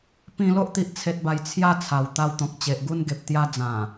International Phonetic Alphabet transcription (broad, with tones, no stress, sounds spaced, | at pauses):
p ĩ˧ l o˦ ʔ t̪ i˨ ʔ t͡sʰ e˨ t̚ b a˨˩ j t͡sʰ j a˥˧ t͡sʰ a˨˩ w t̪ a˧ w t̪ ɔ̃˨ k̚ t͡ɕ e˨ ʔ ɡ u˥˧ n ɡ e˨ p̚ t̪ j a˧ d͡z ã˨˩